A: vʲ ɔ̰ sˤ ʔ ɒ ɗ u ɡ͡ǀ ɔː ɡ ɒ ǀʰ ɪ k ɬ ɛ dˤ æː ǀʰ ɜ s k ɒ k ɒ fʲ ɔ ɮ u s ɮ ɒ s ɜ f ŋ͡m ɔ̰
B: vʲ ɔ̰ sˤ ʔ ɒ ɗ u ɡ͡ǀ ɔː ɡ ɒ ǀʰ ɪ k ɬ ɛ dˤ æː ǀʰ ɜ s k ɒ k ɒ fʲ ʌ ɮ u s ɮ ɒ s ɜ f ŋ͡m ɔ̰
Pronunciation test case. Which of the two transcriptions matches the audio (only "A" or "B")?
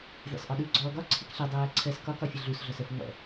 B